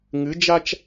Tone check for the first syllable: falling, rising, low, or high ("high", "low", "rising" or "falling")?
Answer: rising